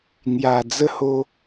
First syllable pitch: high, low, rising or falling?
low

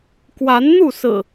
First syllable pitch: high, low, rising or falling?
rising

